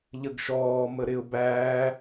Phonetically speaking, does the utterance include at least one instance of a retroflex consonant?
no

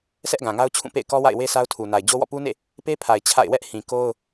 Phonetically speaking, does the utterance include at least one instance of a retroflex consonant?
no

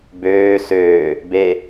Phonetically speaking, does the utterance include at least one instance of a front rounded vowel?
yes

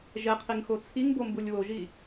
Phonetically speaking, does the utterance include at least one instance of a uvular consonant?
yes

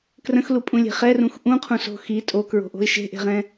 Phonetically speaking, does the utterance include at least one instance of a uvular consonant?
yes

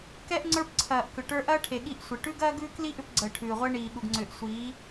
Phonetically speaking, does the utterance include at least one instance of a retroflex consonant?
yes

